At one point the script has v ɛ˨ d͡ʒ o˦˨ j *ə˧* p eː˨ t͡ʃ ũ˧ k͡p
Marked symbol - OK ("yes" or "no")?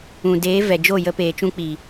yes